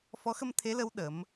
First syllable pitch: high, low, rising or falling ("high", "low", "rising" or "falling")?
rising